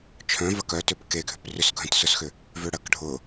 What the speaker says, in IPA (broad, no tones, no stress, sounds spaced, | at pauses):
t͡ʃʰ œ̃ v ɐ k œ t ø p k e ɡʱ ʏ p r ʏ s ɡʱ œ̃ t s ʊ s x ʏ | v ø ɽ ɐ k ɖʱ ʊ